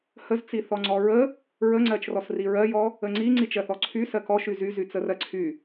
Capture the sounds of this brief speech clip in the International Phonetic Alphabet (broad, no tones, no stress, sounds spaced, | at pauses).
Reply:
h ə z t͡s i θ ɔ ŋ͡ǀ ɔ ɹ ə | ɹ ə ŋ͡ǀ ɜ t͡ʃ r ɔ s r i ɹ ɜ j ɔ | ə ŋ͡ǀ i ŋ͡ǀ i t͡ʃ ɜ θ ɔ ǀʰ y s ɜ k ɔ ʃ y z y z y t͡s ə r ɜ ǀʰ y